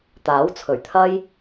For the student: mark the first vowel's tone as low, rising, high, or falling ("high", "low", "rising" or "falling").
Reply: rising